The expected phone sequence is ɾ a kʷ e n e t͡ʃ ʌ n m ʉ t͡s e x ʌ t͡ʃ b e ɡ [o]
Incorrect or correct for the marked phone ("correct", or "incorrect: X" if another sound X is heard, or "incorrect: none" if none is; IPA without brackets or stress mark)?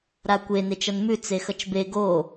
correct